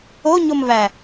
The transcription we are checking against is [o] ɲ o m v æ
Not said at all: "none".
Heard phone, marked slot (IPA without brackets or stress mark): o